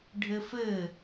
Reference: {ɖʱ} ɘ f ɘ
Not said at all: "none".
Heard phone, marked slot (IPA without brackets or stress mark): ɖʱ